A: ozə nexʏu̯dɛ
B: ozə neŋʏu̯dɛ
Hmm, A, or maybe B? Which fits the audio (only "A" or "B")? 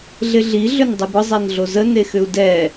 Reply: A